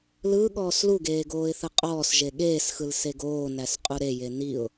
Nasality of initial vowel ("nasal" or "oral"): oral